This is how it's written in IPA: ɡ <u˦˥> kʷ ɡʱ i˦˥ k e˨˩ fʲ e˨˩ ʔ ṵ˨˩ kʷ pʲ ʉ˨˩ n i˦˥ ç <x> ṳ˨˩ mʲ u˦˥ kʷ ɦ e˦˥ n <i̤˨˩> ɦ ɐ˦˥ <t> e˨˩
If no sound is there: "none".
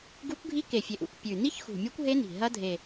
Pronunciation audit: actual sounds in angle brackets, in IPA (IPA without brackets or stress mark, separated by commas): u˦˥, x, i̤˨˩, dʱ